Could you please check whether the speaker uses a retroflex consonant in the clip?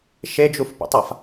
no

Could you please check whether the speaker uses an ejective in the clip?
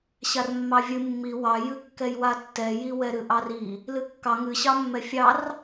no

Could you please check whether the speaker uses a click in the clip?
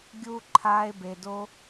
yes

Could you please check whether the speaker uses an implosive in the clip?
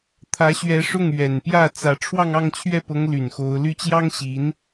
no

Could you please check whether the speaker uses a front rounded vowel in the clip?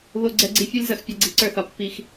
no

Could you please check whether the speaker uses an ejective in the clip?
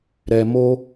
no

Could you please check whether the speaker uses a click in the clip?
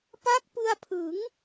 no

